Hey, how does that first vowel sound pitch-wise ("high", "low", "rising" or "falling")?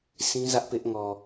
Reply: high